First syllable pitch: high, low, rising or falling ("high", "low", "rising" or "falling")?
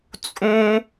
high